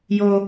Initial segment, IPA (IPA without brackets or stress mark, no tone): j